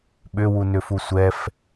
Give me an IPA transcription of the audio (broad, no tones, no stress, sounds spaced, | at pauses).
ɓ ʏ w u n ʏ f u sʷ ɛ f